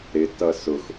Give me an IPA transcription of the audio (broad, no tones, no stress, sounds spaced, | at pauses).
ɾ ɪ t ʌ s ʊ x